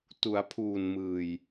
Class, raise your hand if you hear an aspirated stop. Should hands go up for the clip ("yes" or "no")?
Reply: yes